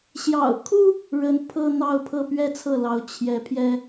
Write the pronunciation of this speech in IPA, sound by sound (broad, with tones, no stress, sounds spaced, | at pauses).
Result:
ɕ j ɑ̰˨˩ ʊ̯ kʰ u˥ | ɻ ə˧˥ n pʰ ɤ˥ n̪ ɑ˥˧ ʊ̯ pʰ ɤ˥˩ p ɥ ɛ˥ t͡sʰ ɤ˥˩ l ɑ˧˥ ʊ̯ t͡ɕʰ j ɛ˧˥ pʰ j ɛ˥